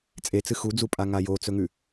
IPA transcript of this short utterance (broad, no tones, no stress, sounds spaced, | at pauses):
t͡sʼ e t͡s ɨ x u d͡z u pʼ a ŋ a j o t͡s ɵ ŋ ʉ